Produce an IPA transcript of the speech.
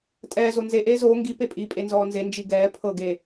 tʼɛːzo nze ʔeːzoː ŋɡi pepʼi pʼenzɔːnze nd͡ʒiɡɛː pʰɤɡeː

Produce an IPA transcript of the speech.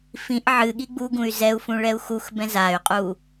fĩʔ ʕɨ ɠiɡ͡buɡũy̯ zɛu̯fũ ɭɛu̯xuxbɛ̃ zay̯qʼu

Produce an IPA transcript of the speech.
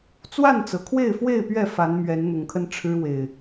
t͡swa˥˨nt͡sɤ˩kʰwe˥˨ɪ̯fwe˥˨ɪ̯ pɥɛ˥˨ fa˨˦nmɥɛ˨˦n n̪ʊ˨˩ŋkʰə˦n ʈ͡ʂʰɻ̩˦ we˨˩ɪ̯

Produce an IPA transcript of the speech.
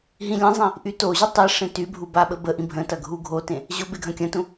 ɦĩlʲɐ̃zˤĩ | ʔytoʑy tˤeʂẽ tybʱu baɓəbəʔĩ bʱə̃tɐ ɡʱuɡʱotẽ | ʑʊ beɡʱɐ̃kʲɐ̃tũ

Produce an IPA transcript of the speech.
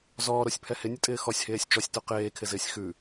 zɔːɾosʲpʰɛ hɪnʲətʼɪː xɔsʲheːsʲ t͡ʃɔsʲto qeːkʰɪzɪːsʲ xʉ

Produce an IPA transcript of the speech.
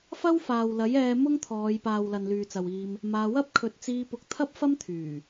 fɐ˥w faː˨wlɐ˨˥jɛː˧ mʊ˥ŋt̪ʰɔː˨˧jpaː˨w lɐ˨nlyː˨t͡sɐ˨wiː˧m | maː˧ wɐ˥p̚ kʰɵ˨˥t̚t͡siː˧pʊ˨˥k̚ t̪ʰɐ˥p̚fɐ˥mt̪ʰyː˨˩

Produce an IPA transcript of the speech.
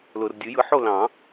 lʊ˨r dʲɯ˨˩˦jɯ˩˥ħo˥˨lɑ̃˨˩˦

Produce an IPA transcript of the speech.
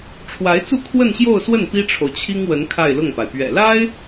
ʈ͡ʂʰwa˧˥ɪ̯t͡su˥˧ kʰwə˥˧nɕjo˥˧ʊ̯swə˥˩n pi˥ʈ͡ʂʰo˨ʊ̯t͡ɕʰi˥ŋwə˧˥n kʰa˥˧ɪ̯lʊ˥˩ŋpa˩ɪ̯ pɥɛ̰˨˩la˥ɪ̯

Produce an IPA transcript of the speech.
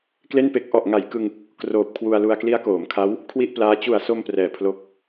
kle˥˩npe˦˥k̚ ʔɔ˨˩ʔŋa˩˦jkɯ˧ŋ | kroː˨˩p̚ kʰwu˧a̯lu˧a̯ kli˦˥a̯koː˩˦mkʰa˦˥w | kʰwi˥˩ʔplaː˦˥ t͡ɕu˨˩a̯so˧m prɛː˨˩pʰlo˦˥k̚

